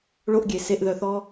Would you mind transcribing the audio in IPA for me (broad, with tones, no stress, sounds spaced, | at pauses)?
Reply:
ɭ o˧ ʔ ɡʲ e˨ s e˧ ʔ ð œ˧ θ ɔ˦